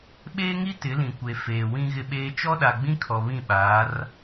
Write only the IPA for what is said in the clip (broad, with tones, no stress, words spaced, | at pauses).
ɓeː˦ŋi˦ tɪ˨˦lĩ˨ kʷe˨ feː˨ wĩ˦ɣɪ˦ɓeː˦ t͡ʃɔ˦ɗa˨ɡ͡bĩ˦kʰɔ˨ βĩ˦˨ɓaː˨˦r